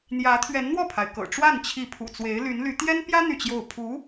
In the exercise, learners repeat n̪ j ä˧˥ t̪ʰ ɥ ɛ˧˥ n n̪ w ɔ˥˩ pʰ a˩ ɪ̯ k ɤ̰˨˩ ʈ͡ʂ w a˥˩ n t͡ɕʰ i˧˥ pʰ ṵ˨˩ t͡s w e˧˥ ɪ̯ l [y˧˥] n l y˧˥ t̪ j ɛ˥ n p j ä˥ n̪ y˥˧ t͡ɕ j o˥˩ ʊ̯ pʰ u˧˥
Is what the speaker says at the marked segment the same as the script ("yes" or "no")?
yes